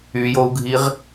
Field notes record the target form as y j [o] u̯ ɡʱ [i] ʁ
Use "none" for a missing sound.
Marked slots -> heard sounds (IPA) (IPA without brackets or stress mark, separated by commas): o, i